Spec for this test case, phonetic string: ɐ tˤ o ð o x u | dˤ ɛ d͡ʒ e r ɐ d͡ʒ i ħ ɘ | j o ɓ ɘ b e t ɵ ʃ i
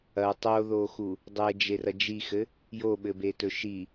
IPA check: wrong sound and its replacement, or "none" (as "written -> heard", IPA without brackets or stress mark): ħ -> x